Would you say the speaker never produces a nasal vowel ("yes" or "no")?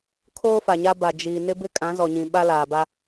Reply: no